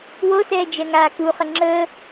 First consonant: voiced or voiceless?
voiced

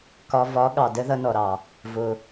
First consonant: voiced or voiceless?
voiceless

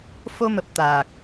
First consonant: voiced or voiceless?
voiceless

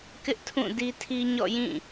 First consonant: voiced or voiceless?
voiceless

